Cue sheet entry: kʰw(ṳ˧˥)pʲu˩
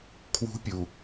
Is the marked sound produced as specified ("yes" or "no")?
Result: yes